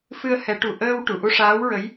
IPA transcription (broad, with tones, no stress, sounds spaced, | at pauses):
f ɨ˧ ə̯ h ɛ˨˩˦ ʈ u˨˩ ʔ əː˧ w ʈ u˨˩˨ ʔ u˧ ʂ aː˧˥ w ɹ ə˧˥ j